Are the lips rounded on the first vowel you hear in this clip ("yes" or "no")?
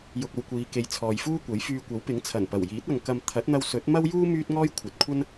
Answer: yes